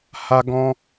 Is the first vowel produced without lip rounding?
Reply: yes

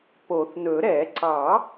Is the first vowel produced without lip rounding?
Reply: no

